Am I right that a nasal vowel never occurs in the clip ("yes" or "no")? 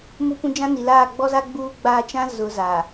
no